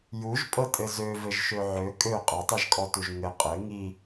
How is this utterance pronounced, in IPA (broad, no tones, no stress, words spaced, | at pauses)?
juʒpʼɤtʼɘ zøvɘʒʃø ʕø kʼø qʼʌtˤiʒkʼɔtuʒ ŋɘ qʼɘ ŋi